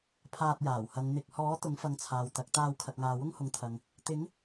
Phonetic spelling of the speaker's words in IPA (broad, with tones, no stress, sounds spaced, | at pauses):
pʰ aː˧ t̚ j aː˨˩ w h ɐ˨˧ ŋ n̪ ɪ˨ k̚ h ɔː˨˥ t̪ ʊ˨˥ ŋ f ɐ˨˧ ŋ t͡sʰ aː˨ w t̪ ɐ˨˥ k̚ t̪ aː˧ w kʰ ɐ˨ k̚ ŋ aː˨ w ʊ˥ ŋ h ʊ˨ ŋ t̪ʰ ɐ˨ ŋ | t̪ ɪ˨˥ ŋ